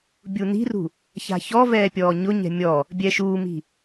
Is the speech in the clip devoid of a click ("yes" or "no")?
yes